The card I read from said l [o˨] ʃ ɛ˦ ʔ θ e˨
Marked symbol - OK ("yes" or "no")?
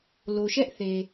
yes